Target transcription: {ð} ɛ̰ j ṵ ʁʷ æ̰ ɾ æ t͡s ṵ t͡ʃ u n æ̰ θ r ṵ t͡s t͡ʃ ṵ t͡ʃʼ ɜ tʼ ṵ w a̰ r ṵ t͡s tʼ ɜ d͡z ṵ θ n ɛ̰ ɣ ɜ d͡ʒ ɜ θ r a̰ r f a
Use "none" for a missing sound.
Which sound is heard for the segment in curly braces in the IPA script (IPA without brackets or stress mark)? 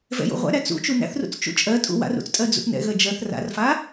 v